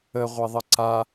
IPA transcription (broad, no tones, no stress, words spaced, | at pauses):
ə ʁʷeðˤəǀa